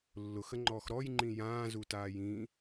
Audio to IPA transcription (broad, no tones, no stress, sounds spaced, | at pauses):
lː ʊ x ə ŋ͡ǃ ɔː x ɾ ɔ j ŋ͡ǃ ĩ j ãː z u t aː j ĩ